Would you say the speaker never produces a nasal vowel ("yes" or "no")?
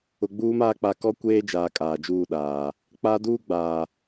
yes